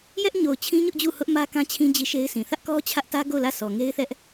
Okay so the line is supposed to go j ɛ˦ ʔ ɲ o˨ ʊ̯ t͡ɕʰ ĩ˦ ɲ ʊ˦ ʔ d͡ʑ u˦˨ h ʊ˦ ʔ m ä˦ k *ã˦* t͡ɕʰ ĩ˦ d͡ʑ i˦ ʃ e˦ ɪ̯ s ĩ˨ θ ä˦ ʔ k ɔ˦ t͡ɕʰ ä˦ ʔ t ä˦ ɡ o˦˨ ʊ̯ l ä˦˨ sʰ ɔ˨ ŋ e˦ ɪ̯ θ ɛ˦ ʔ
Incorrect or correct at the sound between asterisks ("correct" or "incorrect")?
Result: correct